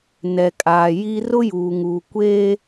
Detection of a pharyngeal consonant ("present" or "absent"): absent